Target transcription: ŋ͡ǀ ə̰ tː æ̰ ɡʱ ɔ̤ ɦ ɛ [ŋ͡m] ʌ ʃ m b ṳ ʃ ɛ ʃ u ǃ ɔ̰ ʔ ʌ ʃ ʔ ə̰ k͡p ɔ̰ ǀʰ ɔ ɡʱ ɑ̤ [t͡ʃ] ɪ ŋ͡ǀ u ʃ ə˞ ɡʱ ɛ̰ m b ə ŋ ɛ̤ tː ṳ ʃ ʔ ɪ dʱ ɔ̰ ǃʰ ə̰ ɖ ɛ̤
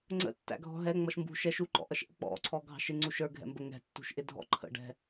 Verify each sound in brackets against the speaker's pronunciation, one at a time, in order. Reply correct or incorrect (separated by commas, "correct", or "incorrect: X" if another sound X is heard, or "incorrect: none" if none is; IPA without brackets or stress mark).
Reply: correct, incorrect: ʃ